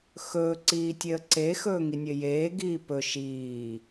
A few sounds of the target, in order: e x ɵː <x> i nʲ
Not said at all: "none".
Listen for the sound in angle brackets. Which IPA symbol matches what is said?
ŋ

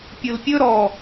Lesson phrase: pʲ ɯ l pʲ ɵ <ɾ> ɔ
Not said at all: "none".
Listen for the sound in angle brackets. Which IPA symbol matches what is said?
ɾ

